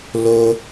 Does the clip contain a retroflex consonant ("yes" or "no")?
no